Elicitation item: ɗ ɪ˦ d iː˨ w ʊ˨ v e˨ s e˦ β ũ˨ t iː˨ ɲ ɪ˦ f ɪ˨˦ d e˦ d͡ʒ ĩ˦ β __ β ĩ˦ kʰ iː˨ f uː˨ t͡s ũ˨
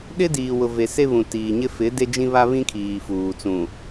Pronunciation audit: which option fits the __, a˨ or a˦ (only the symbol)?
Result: a˦